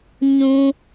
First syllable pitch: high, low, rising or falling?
high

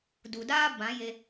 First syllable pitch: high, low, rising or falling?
low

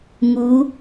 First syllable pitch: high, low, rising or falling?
rising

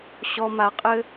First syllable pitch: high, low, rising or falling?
high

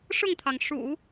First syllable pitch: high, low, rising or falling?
falling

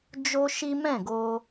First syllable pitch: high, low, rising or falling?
high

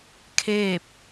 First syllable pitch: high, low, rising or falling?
falling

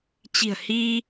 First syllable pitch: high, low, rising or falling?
low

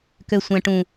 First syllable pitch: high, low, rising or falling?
low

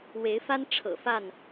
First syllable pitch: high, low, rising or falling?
rising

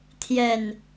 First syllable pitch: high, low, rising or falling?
low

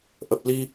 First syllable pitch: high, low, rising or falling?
low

